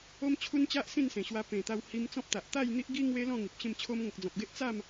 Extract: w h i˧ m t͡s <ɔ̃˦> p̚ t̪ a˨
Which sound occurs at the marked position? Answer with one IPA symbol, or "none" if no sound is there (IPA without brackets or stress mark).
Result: ɔ̃˦